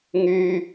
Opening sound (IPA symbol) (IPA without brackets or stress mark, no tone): ŋ